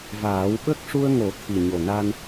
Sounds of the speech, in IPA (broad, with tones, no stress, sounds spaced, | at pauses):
v aː˨˩˦ w ɓ ə˦˥ k̚ ʂ u˧ ə̯ ŋ o˨˩˦ t̪ʰ i˨˩ ɲ o˨˩ n a˧ n